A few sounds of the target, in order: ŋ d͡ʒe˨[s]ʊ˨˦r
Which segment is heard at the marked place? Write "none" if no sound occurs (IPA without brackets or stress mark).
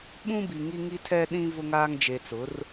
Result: t͡s